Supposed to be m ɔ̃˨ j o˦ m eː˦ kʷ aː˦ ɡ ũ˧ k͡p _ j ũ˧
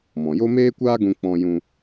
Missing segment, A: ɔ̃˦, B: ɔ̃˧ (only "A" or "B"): B